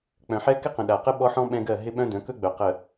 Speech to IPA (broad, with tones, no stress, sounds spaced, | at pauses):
k͡p œ̃˨ ħ ɛ˦ k ɪ˦ q ə̃˨ ɗ a˨ q ə˦ ɓ ɔ˦ ħ ɔ̃˦ ɓ ɛ̃˦ ɡ ɜ˦˨ ɦ ɪ˦ ɓ œ̃˦ d œ̃˨˦ k ɵ˦ ɡ͡b œ˨ q ə˨